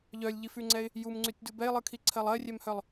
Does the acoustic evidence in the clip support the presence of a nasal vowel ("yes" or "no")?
no